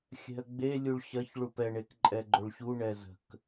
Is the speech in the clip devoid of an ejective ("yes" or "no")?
no